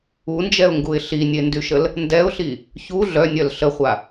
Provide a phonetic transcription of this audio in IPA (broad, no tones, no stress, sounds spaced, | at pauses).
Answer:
u n d͡ʒ ɛ ʊ̯ ŋ ɡ u ɪ̯ ɬ i nʲ e n d y ʃ ə l | n d ɛ ʊ̯ ɬ i | ç u ɮ œ nʲ œ l ɬ ə χʷ a